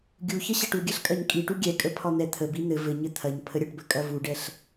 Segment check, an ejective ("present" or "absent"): present